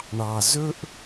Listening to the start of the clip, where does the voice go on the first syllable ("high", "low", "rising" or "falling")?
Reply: low